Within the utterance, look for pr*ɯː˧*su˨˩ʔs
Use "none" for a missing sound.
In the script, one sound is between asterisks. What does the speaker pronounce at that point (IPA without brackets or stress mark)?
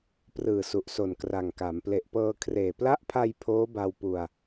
ɯː˨˩